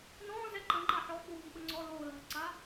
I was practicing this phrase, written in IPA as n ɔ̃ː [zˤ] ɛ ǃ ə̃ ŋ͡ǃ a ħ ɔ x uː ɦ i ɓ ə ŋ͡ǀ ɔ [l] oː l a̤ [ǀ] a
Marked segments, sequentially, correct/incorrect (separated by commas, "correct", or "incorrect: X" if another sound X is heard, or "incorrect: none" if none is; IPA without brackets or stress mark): incorrect: z, correct, correct